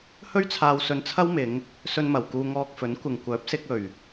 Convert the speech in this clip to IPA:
h ɵ˥ ɥ t͡sʰ aː˧ w s ɵ˧ n t͡sʰ ɐ˥ w m ɪ˨˧ ŋ | s ɵ˧ n m ɐ˨˩ w k uː˧ ŋ ɔː˧ k̚ f ɵ˨˥ n kʷ ɪ˨ ŋ kʷ œː˨˥ p̚ s ɪ˧ k̚ ɵ˨˩ ɥ

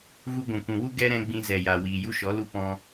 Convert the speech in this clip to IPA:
ɣ u˧ ɡʷ ũ˨ kʷ ũ˨ w u˦ ɡ ɛ˦ ɾ ɛ̃˧ ɡ͡b ĩ˧ z ɛ˨ j a˨ w iː˨ j u˦ ʃ ɔ˨˦ l u˦ p ɔ̃˧

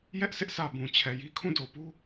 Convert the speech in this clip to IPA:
j ɛ˦ ʔ sʰ ɪ˦ ʔ s ä˨ b ũ˨ t͡ɕʰ ɛ˨ j i˦ kʰ ũ˦˨ d o˨ p u˦

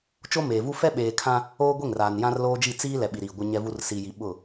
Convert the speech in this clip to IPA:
t͡ʃ o˦ m eː˨ v u˦ f ɛ˦ ɓ eː˨ kʰ ã˦ | oː˦ ɡʷ e˦˨ ŋ r aː˨ n j ã˦ r l oː˦ d͡ʒ i˦˨ t͡s iː˦ l ɛ˨ ɓ i˨ ɾ iː˨ ɡʷ ɪ˦ ɲ ɛ˦ v u˦ r s i˨ j i˨ ɓ ʊ˦˨

